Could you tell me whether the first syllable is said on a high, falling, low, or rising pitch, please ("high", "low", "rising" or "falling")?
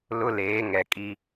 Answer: high